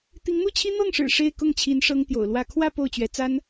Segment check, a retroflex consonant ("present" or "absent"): present